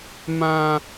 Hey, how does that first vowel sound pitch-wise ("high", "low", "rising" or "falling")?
high